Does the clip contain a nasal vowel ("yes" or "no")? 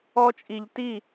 no